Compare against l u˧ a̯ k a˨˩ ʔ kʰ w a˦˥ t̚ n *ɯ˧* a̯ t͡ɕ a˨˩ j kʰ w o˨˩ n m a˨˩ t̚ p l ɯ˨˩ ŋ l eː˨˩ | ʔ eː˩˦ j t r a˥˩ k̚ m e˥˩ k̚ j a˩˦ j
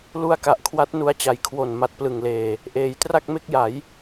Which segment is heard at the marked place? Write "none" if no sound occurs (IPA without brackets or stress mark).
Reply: u˧